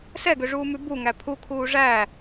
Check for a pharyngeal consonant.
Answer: absent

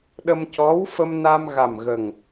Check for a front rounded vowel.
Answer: absent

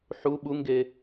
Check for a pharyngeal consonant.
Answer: present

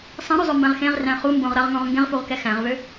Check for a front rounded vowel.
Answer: present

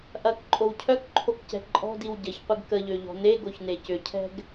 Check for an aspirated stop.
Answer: present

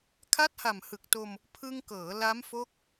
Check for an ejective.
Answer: absent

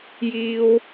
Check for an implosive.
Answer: absent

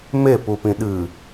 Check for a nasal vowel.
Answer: present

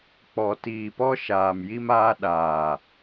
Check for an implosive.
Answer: present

